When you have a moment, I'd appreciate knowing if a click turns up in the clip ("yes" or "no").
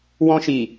no